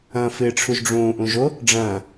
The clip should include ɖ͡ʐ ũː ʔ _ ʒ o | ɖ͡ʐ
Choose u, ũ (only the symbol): ũ